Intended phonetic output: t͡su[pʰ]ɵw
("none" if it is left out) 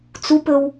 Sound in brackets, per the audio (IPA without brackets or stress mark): p